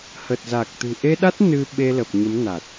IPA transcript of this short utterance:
h ə˨˩ t̚ z a˨˩ k̚ t̪ ɨ̤˨˩ ʔ e˧ ɗ a˦˥ t̚ n ɨ˧ ɓ e˧ l ə˨˩ p̚ ɲ ə˨˦ m n a˨˩ t̚

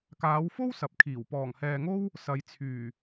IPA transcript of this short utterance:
k aː˨˧ w f o˥ w s ɐ˨ p̚ kʰ iː˨˩ w p ɔː˨˩ ŋ h ɛː˨ ŋ o˥ w | s ɐ˨˧ j t͡sʰ yː˨˩

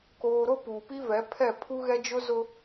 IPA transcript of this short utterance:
k oː˨ ɾ o˦ p uː˨ p i˦ v ɛ˨˦ pʰ ɛ˦˨ pʰ u˦ ɣ ɛ˦ d͡ʒ ʊ˦ z ʊ˦

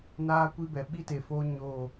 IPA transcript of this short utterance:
n aː˦ kʷ i˦ b ɛ˨ ɓ i˦ t e˨ f oː˦ ɲ o˦˨

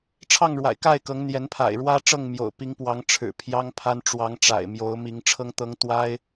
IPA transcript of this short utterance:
ʈ͡ʂʰ ɑ˥˨ ŋ ɻ w a̰˨˩ ɪ̯ k a˥˨ ɪ̯ k ɤ˨˦ ŋ n̪ j ɛ˨˦ n pʰ a̰˨˩ ɪ̯ ɻ w ä˦ ʈ͡ʂ ɤ˥˨ ŋ m j o̰˨˩ ʊ̯ p i˨˦ ŋ p w ɑ˨˦ ŋ ʈ͡ʂʰ ɻ̩˨˩ pʰ j ɑ˦ ŋ pʰ a˦ n ʈ͡ʂ w ɑ˨˦ ŋ ʈ͡ʂ a̰˨˩ ɪ̯ m j o˨˦ ʊ̯ m i˨˦ ŋ ʈ͡ʂʰ ɤ˦ ŋ t̪ ɤ˦ ŋ t̪ w a˦ ɪ̯

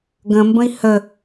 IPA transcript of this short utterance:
ɡ ə̃ m b ə̃ i̯ h ə

